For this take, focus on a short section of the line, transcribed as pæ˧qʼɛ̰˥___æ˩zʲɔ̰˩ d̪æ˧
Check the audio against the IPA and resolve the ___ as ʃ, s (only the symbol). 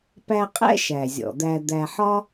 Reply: ʃ